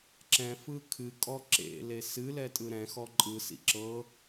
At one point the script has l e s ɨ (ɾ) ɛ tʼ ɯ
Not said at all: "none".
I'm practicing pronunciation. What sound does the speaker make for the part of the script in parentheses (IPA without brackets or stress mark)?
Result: l